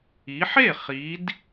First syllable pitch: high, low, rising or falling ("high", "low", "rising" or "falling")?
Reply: rising